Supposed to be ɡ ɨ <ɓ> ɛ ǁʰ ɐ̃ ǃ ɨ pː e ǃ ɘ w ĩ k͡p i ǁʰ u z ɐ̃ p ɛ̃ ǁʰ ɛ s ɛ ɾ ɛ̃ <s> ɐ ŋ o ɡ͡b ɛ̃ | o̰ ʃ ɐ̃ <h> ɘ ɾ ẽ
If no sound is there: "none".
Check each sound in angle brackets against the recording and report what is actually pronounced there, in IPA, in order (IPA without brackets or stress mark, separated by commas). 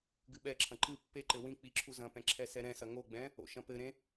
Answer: ɓ, s, p